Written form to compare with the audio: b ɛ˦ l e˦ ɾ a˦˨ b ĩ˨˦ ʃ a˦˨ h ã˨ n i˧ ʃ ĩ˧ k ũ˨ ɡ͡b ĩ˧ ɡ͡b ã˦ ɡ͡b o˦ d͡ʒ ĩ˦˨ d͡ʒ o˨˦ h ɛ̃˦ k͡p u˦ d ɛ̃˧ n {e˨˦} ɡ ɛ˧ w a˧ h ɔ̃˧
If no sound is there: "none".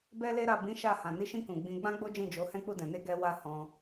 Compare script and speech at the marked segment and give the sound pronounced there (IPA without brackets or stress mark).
e˦